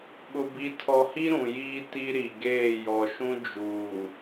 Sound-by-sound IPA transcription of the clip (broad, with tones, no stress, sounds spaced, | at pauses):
ɓ ʊ˨ b i˨ tʰ ɔ˨ h i˦ ɾ ũ˨ j iː˦ t i˦ ɾ i˨ ɡ eː˦˨ j ɔ˨ ʃ ũ˦ d͡ʒ uː˨